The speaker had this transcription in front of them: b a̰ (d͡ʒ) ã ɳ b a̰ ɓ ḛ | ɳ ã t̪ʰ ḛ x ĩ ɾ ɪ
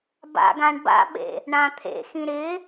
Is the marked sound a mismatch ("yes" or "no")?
yes